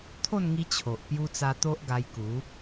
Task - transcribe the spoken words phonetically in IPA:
t̪ʰ o˥˧ n ŋ i˧ t͡ɕʰ o˨ ʔ p j u˧ t͡s a˧ t̪ o˦ ʔ ɡ a˧ j k u˨˦

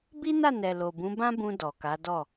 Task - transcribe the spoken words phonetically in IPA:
b i˦ n a˦˨ n ɛ˨ l o˨ b ũ˨˦ b ã˦ b ũ˧ d ɔ˨ k a˨˦ d ɔ˦˨

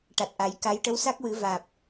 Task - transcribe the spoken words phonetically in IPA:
ʈ a˨˩ t̚ ʔ a˨˩˦ j k a˧˥ j ʈ ə˧˥ w s a˦˥ k̚ w ɨ˨˩˦ v aː˨˩ p̚

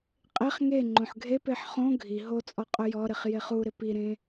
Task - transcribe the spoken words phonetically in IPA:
qʼ e χ ŋ e ŋ͡ǃ õ ħ ɡʱ e p e ħ χ õ ɡʱ i ɦ o t͡sʼ ɔ qʼ ʊ j ɔ ɾ ɪ χ j e χ u ɾ ɪ p i ɾ ẽ

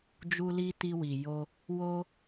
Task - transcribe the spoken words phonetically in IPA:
d͡ʒ u˧ l i˧ t i˧ w i˨ j o˧ | w o˧

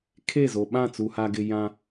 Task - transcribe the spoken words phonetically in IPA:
kʰ e˦˨ z o˨ ɓ ã˦˨ t͡s u˨ h a˨ ɡ ɪ˨ j ã˦

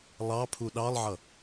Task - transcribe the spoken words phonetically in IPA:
lˠ ɑ pʰ u ɗ ɑ lˠ ʕ ʌ

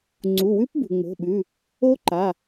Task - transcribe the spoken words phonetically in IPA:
ŋ͡ǀ u˩˧˩ w ʉ˦˥ p b ṳ˩ ŋ͡m o̤˩˧˩ ɓ ʉ˩˧˩ | o˦˥ ǃ a˩˧˩

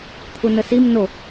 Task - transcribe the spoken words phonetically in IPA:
t̪ʰ u n ə s i m n o

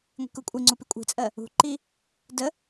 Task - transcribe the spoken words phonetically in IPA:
ŋʷ i̤ k u kʷʼ i ŋ͡ǀ u p i kʷʼ i̤ t͡sʼ ɜ | ṳ ǃ i | d ə

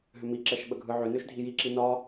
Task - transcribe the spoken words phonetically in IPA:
ɦ ʏ m i ǁ ɛ ʃ ɓ ə ɡʱ ɯ ʕ ʏ n ø ʃ dʱ i j i ǁ i n ɒ

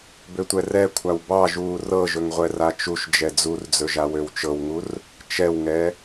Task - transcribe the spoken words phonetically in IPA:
b ø tʷ ɛ r ɛ kʷʰ a w b ɑ ʒ uː r ɤ ʒ ɵ ŋ ʁʷ ɛ r a t͡ʃ u ʃ d͡ʒ ɛ d͡z u r d͡z ɵ ʒ a w ø w t͡ʃ ɤ w ŋ u r | t͡ʃ ɛ w ŋ ɛ

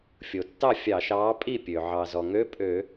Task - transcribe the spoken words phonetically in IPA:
fʲ o˩ tː ɑ˥˩ fʲ ɑ˧˩˧ ʃ ɑː˨˥ pʼ i˥˩ pʲ ø˩ ʕ ɑ˩ z ɔ˩ ŋ ø˧˥˧ pʼ ø˧˩˧

